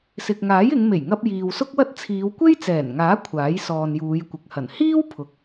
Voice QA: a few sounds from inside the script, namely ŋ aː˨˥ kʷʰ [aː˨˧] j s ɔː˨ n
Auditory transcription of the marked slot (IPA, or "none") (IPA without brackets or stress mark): aː˨˥